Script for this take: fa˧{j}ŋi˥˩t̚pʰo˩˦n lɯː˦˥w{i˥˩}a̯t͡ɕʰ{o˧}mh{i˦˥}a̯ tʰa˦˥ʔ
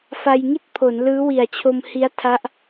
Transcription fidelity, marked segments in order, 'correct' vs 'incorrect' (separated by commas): correct, incorrect, correct, correct